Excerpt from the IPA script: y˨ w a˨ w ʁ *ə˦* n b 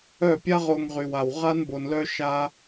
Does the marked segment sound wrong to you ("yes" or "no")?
yes